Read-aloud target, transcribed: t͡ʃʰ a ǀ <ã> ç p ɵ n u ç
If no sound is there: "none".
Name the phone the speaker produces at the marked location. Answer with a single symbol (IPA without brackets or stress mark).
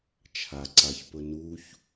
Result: a